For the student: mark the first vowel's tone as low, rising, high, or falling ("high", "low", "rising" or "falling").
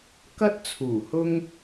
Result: high